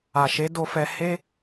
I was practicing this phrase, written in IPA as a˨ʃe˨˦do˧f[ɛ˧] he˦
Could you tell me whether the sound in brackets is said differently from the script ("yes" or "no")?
no